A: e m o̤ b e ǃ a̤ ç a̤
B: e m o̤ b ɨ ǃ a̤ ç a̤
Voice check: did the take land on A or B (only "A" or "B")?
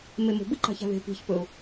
B